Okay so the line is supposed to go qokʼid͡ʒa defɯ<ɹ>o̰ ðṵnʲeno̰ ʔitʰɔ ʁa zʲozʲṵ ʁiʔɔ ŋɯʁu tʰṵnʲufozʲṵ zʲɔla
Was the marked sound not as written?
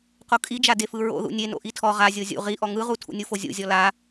no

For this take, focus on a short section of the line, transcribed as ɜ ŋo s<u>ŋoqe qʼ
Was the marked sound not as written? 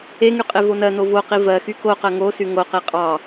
yes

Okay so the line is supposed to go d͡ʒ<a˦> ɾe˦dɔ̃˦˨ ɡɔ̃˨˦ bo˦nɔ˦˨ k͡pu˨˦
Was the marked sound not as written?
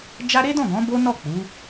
no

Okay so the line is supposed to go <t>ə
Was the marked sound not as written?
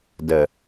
yes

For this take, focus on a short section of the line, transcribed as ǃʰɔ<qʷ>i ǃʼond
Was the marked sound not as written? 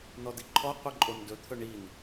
no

